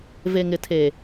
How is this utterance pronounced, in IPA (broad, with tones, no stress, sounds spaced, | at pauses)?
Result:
v e˨ ŋ ɪ˨ tʰ eː˨